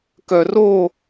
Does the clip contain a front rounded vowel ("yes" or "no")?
yes